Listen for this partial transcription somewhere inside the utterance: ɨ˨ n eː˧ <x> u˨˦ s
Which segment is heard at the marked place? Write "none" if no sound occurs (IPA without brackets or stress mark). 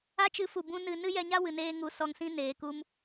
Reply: ŋ